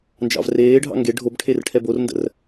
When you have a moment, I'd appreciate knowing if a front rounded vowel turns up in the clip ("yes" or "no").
no